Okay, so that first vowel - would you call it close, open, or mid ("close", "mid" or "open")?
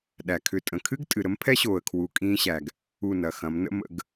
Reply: open